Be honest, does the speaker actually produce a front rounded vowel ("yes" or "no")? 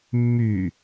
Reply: yes